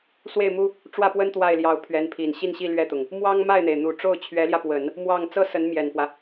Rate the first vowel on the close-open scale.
mid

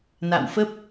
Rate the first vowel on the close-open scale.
open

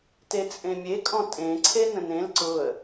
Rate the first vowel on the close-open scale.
mid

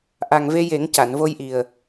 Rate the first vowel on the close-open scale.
open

